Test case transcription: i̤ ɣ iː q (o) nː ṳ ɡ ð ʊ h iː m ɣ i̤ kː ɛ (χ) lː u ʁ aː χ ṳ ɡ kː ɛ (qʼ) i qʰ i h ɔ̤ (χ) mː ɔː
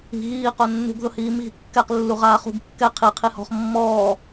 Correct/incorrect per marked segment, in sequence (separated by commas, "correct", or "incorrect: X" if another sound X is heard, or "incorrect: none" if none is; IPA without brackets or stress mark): correct, incorrect: q, incorrect: qʰ, correct